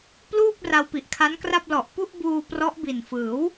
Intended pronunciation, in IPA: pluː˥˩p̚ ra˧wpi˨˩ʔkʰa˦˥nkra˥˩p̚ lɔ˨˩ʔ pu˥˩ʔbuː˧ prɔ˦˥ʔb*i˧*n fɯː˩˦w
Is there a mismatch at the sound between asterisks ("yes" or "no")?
yes